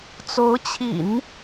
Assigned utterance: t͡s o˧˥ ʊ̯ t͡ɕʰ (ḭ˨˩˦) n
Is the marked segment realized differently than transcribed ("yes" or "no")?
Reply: no